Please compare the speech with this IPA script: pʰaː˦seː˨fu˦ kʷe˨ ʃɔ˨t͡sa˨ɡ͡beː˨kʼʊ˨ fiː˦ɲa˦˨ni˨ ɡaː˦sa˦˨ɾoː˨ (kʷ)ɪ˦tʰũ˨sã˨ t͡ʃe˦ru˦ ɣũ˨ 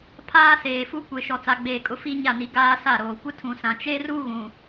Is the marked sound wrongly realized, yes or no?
no